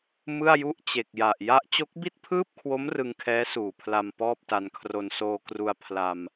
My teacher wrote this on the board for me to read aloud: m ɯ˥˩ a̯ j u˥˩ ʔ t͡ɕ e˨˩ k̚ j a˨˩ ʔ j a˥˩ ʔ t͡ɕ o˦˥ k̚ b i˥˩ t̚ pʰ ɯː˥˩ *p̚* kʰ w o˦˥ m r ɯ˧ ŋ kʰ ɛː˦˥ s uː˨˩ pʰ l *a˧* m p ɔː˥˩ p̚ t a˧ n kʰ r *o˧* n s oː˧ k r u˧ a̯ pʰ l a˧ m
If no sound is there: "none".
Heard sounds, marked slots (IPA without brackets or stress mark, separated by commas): p̚, a˧, o˧